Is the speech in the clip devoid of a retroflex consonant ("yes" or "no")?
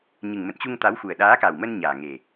yes